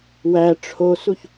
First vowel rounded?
no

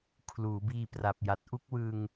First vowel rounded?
yes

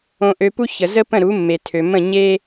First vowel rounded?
yes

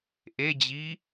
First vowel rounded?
no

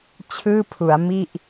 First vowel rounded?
no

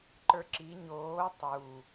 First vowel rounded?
no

